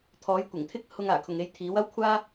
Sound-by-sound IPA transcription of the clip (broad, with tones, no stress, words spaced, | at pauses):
t̪ʰɔː˨˥jkʷɪ˨˩ŋt̪ʰɪ˥k̚ hʊ˧ŋaː˨˩kʰʊ˨ŋ e˧jt̪ʰiː˨˥wɐ˥wkʷʰaː˥